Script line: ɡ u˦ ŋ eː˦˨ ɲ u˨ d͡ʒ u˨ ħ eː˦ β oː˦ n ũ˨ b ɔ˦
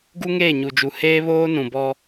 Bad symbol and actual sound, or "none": ħ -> h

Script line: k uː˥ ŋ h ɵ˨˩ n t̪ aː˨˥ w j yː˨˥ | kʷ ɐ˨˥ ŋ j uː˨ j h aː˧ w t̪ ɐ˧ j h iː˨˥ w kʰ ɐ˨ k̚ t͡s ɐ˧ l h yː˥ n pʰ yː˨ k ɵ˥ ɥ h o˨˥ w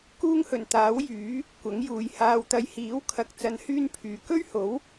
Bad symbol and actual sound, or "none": l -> n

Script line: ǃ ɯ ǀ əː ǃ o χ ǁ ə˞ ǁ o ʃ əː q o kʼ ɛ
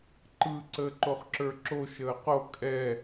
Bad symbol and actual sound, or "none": none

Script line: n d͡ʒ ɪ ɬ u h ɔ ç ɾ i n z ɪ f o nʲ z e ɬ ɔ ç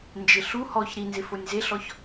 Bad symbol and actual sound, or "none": none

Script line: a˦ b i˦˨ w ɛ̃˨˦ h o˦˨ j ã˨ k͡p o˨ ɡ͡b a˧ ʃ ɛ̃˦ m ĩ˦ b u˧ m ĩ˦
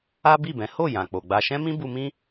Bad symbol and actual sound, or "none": w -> b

